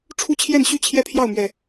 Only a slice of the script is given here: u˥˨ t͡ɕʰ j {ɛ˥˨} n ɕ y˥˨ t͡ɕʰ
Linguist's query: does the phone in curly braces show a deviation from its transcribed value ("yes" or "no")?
no